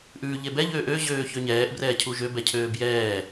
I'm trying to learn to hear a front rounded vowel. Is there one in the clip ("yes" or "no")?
yes